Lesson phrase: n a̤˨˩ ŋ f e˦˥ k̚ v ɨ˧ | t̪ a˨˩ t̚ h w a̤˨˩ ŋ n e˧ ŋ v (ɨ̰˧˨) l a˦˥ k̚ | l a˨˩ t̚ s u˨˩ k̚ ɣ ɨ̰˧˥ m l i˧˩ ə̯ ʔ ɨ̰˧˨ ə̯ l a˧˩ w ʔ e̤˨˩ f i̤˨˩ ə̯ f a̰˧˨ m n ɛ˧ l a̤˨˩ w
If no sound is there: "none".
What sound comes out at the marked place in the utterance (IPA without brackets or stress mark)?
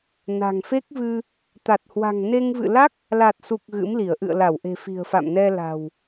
ɨ̰˧˨